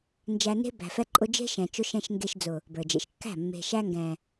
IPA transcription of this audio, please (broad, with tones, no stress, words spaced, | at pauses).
nd͡ʒæ˧ne̤˦ bæ̤˨fɛ˧ǃʼʊ˧ d͡ʒe̤˦ʃɛ̃˨t͡ʃʊ˧ʃɛ̃˧ʃ ŋɡe˧ʃ d͡zʊ˨ | bə˞˨d͡ʒḛ˨ʃkːæ̤˦˨ mːe̤˨ʃæ˧ ŋɡɛ̃˨